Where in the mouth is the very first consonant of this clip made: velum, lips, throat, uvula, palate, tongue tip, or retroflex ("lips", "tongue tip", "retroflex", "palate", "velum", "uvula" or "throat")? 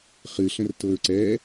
uvula